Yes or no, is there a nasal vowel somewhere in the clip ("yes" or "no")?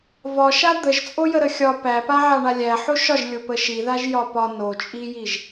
no